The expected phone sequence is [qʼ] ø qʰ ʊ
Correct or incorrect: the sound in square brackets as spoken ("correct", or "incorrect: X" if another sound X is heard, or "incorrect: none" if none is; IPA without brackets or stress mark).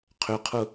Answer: incorrect: qʰ